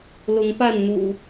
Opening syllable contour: rising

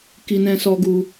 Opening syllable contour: high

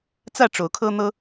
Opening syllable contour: falling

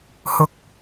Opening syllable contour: high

